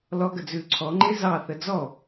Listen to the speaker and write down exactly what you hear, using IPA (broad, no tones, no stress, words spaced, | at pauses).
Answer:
lɔɡəd͡zʉː ǀʰɔŋ͡ǃe zɑθə d͡zɔ